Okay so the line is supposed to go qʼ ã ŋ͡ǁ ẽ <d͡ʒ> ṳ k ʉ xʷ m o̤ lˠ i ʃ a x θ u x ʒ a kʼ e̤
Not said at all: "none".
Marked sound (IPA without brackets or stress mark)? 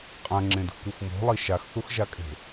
d